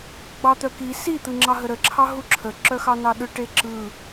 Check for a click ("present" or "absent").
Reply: present